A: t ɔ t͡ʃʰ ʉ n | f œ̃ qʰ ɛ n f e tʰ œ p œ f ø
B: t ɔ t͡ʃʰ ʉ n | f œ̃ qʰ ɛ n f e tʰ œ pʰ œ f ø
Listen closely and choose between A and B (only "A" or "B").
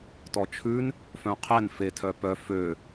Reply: A